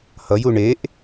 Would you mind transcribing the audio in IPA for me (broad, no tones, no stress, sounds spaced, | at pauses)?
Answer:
h ʌ j u ɳ e ʔ